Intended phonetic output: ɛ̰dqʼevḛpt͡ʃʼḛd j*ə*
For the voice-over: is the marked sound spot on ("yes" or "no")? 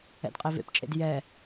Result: no